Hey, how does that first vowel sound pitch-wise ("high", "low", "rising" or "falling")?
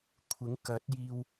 rising